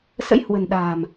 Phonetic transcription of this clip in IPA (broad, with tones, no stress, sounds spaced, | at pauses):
s ə̰˧˥ j h w ə̤˨˩ n ɗ a̤ː˨˩ m